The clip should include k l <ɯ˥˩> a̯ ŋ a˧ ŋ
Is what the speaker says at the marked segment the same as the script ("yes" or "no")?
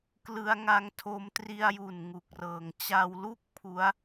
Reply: no